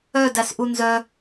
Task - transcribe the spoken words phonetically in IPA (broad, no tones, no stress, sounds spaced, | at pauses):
œ d æ s ʔ u n z œ